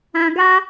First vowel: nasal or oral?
nasal